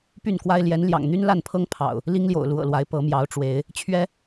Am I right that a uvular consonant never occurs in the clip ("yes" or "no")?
yes